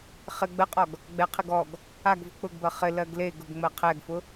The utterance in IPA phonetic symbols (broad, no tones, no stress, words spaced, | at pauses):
χɪ ɡ͡bəqʼɔɡ | ɡ͡bɛqʰɪɡ ɔɡ | aɡvʊ k͡pʊɡbɜ χɪlɜɡ leɡʊɡ ŋ͡mɜqʰɛɡfʊ